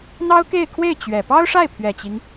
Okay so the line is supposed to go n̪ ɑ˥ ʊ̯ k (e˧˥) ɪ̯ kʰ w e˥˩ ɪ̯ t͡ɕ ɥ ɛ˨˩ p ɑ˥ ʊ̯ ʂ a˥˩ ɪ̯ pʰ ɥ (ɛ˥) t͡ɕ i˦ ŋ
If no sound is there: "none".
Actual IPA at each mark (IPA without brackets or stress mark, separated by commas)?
e˥˧, ɛ˨˩